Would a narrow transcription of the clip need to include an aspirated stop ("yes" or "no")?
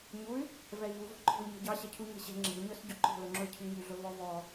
yes